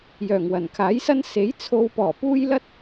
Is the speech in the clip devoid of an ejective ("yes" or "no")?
yes